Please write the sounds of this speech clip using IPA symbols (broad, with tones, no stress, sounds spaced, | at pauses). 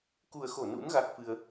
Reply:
k u˨˩ ə̯ x o˧˩ n ṵ˧˥ n ɣ a˦˥ k̚ f ɨ˧ ə̯